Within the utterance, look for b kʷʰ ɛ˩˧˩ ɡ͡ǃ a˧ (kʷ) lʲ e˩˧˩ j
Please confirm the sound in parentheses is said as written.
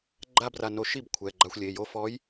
no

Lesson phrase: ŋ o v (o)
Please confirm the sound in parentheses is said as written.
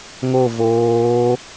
no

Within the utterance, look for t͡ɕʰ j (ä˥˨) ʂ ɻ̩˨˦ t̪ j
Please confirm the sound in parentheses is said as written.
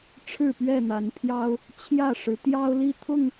yes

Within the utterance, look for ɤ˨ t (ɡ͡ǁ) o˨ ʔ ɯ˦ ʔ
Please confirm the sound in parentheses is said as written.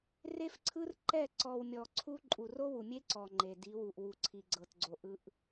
no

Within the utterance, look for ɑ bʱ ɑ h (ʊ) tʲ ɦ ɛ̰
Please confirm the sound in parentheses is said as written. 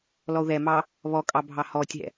no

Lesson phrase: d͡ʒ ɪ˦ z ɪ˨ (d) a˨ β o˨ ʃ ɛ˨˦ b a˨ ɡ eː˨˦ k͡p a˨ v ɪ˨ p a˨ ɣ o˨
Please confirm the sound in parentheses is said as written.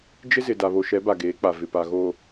yes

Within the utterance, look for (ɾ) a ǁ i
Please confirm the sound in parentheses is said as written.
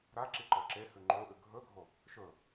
yes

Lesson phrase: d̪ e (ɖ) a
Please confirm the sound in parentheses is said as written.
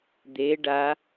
yes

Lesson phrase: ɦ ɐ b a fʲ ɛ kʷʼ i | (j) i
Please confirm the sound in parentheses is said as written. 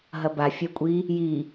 yes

